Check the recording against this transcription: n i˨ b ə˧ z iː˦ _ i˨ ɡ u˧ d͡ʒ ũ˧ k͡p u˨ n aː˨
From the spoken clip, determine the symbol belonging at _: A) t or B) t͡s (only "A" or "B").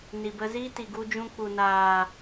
A